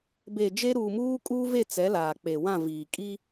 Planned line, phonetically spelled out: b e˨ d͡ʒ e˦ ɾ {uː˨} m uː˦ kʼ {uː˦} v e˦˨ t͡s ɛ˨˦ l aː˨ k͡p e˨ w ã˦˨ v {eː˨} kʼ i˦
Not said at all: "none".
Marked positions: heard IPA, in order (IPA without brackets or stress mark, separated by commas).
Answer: uː˨, uː˦, iː˨